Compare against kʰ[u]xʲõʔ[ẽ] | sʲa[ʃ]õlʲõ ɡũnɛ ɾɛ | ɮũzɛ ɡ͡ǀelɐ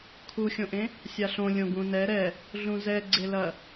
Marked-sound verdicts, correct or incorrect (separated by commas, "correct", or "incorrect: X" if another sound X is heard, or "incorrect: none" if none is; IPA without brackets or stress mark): correct, correct, incorrect: ɬ